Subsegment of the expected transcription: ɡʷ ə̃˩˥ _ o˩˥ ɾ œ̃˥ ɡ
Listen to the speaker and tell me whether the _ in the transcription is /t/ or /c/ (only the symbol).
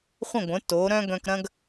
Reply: t